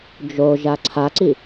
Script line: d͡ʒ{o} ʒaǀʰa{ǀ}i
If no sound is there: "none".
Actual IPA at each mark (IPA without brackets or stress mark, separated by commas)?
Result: o, ǀ